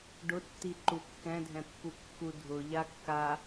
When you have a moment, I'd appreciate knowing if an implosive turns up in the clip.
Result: no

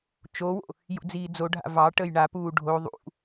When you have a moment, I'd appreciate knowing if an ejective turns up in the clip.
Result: no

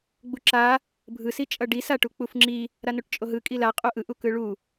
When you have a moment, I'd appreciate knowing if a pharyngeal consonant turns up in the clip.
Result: no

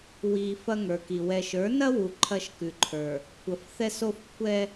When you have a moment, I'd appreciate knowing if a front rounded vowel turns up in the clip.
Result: no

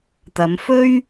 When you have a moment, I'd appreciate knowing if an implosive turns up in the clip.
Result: no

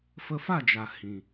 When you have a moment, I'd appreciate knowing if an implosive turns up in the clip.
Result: no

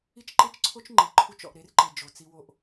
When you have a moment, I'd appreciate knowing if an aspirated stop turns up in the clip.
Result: yes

